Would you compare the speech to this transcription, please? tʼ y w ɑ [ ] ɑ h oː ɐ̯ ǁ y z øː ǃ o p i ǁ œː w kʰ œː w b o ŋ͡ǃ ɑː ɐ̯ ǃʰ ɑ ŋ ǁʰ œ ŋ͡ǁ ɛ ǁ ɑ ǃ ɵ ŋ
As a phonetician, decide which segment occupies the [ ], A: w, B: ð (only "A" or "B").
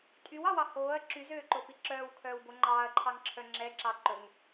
A